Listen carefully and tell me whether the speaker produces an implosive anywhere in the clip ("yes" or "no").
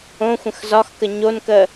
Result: no